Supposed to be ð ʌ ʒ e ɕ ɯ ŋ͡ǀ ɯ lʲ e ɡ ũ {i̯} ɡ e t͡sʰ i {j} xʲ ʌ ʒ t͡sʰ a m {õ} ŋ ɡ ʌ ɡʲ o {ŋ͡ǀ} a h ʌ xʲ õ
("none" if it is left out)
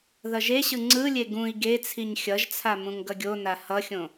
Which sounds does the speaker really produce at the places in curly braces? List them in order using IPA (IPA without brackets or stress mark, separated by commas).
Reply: i̯, ɲ, ũ, n